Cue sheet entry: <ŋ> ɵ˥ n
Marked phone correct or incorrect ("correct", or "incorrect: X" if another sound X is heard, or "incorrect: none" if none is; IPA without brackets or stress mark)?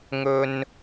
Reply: correct